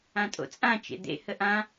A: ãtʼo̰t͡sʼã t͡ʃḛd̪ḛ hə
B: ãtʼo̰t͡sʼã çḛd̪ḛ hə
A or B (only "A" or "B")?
A